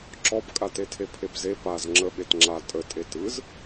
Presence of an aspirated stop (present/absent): present